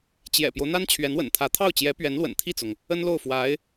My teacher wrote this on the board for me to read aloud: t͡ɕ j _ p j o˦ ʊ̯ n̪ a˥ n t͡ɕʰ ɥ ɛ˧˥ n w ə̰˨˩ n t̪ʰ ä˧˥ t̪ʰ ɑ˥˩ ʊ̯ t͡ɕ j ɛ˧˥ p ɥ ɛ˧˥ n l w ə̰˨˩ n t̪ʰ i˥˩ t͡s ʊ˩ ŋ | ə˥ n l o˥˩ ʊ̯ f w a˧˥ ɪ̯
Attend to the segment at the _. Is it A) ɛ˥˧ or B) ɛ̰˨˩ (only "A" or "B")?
B